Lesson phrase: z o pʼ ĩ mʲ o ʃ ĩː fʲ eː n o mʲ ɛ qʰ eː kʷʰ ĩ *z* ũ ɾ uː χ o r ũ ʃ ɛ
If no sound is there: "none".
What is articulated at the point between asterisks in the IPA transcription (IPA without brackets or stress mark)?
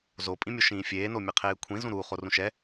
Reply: z